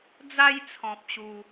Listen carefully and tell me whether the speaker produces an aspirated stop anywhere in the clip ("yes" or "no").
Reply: yes